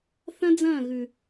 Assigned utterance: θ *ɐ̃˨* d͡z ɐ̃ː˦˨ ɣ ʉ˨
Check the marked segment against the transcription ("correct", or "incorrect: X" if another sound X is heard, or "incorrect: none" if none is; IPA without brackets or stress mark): incorrect: ɐ̃˦